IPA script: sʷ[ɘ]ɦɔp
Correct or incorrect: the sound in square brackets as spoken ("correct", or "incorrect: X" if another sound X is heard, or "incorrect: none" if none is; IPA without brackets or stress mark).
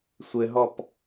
correct